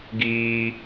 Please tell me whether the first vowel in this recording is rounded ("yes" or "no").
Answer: no